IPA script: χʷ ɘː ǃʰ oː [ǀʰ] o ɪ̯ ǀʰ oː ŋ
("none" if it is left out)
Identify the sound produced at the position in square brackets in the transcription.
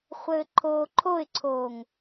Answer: ǃʰ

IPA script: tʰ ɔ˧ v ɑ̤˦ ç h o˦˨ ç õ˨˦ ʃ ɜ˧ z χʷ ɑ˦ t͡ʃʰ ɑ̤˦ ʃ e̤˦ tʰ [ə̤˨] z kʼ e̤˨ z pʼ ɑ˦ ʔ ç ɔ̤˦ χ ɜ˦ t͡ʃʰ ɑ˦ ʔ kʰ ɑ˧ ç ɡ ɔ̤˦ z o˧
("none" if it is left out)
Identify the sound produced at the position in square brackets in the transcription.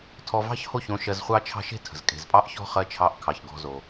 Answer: ə̤˨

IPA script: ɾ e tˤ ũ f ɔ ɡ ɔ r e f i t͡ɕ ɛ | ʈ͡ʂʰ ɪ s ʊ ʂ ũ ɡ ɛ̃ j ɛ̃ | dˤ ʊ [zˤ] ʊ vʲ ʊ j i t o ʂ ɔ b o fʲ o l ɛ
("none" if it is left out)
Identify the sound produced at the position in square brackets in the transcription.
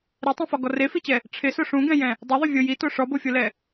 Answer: ðˤ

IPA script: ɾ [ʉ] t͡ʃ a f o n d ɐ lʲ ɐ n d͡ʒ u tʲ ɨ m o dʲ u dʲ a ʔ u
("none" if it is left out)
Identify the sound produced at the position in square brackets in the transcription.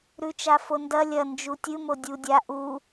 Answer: ʉ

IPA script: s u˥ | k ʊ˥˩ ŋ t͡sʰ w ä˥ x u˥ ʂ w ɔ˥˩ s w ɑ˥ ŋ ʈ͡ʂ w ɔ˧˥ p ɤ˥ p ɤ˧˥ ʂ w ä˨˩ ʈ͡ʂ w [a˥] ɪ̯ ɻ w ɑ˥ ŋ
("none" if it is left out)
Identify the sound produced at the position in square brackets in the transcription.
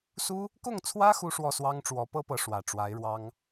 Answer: a˧˥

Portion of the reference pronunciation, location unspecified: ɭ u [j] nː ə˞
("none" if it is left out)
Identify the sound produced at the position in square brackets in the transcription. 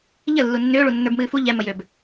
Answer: none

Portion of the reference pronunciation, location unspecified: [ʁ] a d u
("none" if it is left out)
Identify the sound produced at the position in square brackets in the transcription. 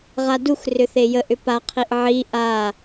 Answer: ʁ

